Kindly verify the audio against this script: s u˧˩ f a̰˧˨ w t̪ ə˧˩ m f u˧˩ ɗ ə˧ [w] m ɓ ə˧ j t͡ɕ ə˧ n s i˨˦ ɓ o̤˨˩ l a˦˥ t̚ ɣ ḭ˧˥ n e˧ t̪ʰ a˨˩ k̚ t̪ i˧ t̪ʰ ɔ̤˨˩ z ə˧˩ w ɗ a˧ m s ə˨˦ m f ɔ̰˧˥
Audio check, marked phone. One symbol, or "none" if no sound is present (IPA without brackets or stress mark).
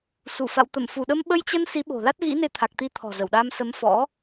none